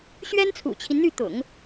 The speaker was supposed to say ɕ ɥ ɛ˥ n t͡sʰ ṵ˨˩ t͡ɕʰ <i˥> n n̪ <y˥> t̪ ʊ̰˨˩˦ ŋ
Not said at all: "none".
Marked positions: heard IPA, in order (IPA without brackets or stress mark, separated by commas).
i˦, y˥˩